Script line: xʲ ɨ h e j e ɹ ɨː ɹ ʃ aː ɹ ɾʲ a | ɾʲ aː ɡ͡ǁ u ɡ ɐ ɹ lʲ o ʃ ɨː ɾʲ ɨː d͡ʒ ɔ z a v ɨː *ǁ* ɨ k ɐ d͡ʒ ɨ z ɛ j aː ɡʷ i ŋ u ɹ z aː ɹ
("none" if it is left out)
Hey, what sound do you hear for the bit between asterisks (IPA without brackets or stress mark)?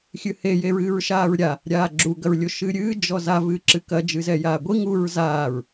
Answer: ǁ